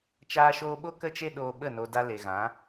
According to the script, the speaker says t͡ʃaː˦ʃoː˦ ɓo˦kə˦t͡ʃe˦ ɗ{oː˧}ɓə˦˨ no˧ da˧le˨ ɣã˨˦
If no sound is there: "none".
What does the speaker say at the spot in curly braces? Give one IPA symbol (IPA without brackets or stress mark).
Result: oː˧